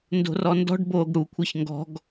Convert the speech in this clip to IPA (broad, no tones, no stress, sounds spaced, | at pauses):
n d o̤ r ɔ n d ɔ̤ ɖ b oː ɡ ɽ u kʷʰ ɛ ç ŋ ɡ ɔ̤ ɡ